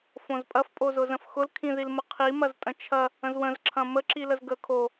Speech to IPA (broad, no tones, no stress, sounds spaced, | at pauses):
f õ z pʼ ɐ f pʼ o z ʊ z ə̃ f x ʊ l kʰ ĩ ð i l m ə qʰ i m ɐ z tʼ ə̃ t͡ʃʰ ɐ | ə̃ z w ə̃ z ǁʰ ɐ̃ m ə ǁ i l ə z ɡ ə kʰ o